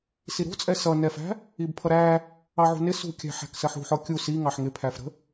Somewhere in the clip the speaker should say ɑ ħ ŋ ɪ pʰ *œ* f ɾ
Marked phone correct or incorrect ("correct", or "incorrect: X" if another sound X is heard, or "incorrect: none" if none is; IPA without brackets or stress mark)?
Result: incorrect: æ